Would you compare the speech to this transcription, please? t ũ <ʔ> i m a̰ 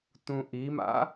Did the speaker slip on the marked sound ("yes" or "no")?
no